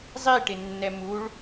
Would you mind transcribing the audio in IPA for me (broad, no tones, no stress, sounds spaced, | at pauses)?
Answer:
zˤ i ʈ ɪ nː ɛ m u ɭ